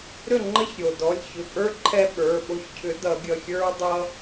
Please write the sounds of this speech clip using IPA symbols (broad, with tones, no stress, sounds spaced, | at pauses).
ɾ ʏ˥˩ ŋ͡ǃ ə˦ ç ɾʲ o˩ d ɔ˩˧˩ lʲ ç ʏ˩˧˩ pʼ ə˞˦ ǃʰ ɛ˦ ɓ ə˞˩˧˩ ɓ o˦ ç cʰ ʏ˨˥ d ʌ˨˩˦ ɡʲ ʌ˩˧˩ xʲ ə˞˦ dˤ ʌ˦